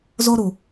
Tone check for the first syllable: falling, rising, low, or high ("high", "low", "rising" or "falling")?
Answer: high